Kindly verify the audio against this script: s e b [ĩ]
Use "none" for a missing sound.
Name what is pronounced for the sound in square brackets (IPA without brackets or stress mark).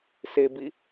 i